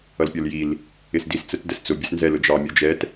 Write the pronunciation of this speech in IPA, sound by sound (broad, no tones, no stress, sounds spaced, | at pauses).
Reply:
ʌ l pʲ ɔ l j i l | ɪ s d i s t͡s ə t d ə s t͡s ʊ bʲ ə s n z ɛ l ʊ d͡ʒ ɑ mʲ ə˞ d͡ʒ ɛ t